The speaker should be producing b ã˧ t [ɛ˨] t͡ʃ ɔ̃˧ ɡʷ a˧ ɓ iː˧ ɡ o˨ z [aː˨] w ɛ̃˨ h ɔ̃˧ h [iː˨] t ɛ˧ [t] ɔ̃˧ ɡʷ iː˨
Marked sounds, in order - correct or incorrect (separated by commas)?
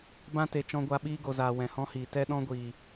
incorrect, correct, correct, incorrect